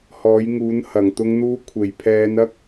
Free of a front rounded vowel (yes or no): yes